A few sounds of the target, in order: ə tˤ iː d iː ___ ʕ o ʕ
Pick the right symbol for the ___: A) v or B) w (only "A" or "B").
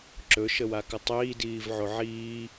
A